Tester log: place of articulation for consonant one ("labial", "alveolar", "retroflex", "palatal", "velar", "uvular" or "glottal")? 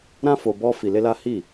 alveolar